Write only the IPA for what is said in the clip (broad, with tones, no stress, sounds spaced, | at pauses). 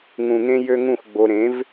ŋ ũ˨ ŋ ẽ˧ j ø˦ ŋ ũ˦˨ x ɡ͡b o˧ ɾ ẽ˨˦ v